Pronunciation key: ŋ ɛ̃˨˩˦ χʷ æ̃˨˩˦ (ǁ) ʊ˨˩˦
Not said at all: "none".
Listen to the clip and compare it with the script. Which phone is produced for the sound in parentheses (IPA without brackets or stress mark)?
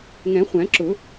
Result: ǁ